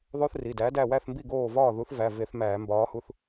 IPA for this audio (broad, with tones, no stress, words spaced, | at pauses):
ðˤo˦θri˩˧˩dæ˨˥ dæ˧˩wæ˥˩θmbi˥˩ ɡoː˥˩ vɒː˥˩ðu˨˥θ væ˩˧˩ve˧˩˧θ mæː˧˩˧mbɒː˨˥hu˦θ